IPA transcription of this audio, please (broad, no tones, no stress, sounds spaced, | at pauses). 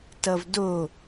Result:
t ʌ v d o